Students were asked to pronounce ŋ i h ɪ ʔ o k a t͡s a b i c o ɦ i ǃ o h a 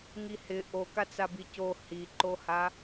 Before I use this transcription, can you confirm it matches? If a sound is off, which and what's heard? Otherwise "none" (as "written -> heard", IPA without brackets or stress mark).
ɦ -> h